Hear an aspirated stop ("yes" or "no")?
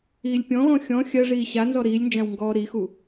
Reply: no